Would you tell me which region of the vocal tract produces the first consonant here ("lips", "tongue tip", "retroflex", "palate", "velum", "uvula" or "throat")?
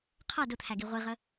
uvula